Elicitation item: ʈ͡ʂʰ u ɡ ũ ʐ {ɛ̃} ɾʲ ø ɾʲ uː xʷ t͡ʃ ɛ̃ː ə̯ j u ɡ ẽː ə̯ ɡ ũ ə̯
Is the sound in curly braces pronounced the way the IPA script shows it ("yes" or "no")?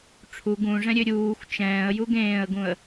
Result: yes